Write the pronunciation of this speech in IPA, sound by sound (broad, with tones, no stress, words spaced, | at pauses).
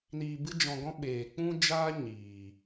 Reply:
niː˧bɨ˦d͡ʒɔ̃˧ɡɔ̃˦ ɓeː˨k͡pũ˦d͡ʒaː˦ ɲiː˨